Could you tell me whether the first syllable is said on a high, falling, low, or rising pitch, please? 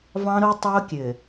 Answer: high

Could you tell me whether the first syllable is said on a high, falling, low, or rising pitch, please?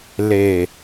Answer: low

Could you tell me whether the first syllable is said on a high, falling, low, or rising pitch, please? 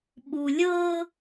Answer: low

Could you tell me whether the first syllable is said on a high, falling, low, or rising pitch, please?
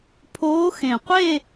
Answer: rising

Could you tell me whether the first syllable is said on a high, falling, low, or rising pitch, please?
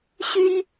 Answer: high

